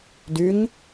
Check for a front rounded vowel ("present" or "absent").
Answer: present